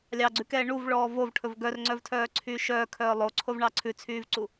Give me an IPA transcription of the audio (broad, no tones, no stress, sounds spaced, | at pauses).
lʲ ɑ ɡ͡ǀ ʉ k ɛː ɳ u v ɭ ɔː v o v ʈʰ ɵ v ɡ œ r ŋ͡ǀ œ v tʰ œː ǀʰ yː ʃ œː kʰ œː lˠ o ǀʰ o v ɳ ɑ ǀʰ ʉ t͡sʰ yː v ǀ u